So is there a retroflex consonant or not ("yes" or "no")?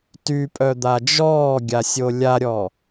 no